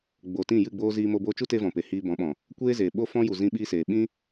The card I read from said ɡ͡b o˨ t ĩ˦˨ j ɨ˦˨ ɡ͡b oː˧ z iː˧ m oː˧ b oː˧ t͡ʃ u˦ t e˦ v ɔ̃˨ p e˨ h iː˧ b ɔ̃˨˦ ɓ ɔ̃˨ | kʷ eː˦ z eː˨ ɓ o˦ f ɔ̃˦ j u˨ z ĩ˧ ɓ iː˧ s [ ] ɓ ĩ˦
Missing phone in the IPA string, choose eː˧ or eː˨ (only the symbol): eː˨